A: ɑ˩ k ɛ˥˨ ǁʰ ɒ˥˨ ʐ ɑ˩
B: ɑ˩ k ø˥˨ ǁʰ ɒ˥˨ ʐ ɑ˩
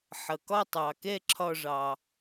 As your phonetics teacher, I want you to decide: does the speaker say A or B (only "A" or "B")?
A